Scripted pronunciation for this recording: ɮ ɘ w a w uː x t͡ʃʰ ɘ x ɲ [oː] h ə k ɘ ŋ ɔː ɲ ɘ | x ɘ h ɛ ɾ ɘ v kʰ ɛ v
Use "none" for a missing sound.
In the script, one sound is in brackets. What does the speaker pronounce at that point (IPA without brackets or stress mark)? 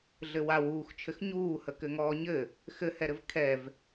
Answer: uː